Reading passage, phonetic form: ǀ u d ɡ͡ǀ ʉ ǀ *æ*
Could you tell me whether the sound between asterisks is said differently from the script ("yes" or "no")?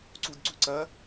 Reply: yes